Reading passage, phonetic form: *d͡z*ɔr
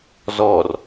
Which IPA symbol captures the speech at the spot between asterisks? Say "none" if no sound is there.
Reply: z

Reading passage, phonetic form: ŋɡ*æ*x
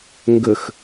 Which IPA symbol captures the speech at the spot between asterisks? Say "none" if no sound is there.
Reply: ə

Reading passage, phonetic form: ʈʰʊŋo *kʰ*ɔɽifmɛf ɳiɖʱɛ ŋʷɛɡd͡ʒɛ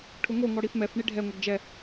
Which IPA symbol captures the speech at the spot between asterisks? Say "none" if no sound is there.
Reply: ŋ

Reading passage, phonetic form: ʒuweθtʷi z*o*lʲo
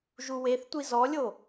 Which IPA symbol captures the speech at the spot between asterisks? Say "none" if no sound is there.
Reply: ɔ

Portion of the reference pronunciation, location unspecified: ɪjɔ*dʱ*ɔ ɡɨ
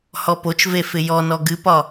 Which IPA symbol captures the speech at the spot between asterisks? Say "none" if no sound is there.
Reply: n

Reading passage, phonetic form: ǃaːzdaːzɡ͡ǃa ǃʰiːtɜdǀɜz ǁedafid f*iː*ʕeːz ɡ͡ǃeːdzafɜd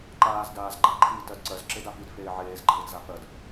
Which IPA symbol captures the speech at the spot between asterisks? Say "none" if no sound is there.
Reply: eː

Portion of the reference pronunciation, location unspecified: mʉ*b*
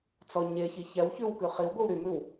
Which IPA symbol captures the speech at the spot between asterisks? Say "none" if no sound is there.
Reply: w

